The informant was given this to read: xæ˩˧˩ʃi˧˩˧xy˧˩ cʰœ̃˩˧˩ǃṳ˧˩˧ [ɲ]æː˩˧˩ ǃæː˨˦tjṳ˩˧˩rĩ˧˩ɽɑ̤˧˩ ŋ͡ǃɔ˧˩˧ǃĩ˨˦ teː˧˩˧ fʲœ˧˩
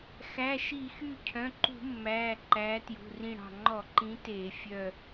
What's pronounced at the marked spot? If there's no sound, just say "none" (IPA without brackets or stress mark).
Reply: mː